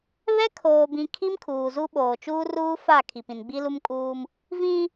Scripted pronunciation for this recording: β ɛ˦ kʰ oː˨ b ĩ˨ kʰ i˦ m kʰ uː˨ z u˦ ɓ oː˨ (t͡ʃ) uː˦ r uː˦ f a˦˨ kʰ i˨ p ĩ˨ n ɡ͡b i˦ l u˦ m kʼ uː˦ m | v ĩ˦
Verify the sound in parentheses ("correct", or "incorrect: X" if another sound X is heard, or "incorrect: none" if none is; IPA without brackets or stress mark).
correct